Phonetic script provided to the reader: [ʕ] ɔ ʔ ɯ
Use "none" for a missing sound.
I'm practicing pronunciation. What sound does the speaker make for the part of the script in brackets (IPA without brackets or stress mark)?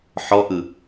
ħ